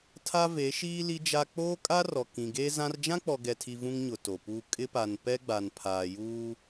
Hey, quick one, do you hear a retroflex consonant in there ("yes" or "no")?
no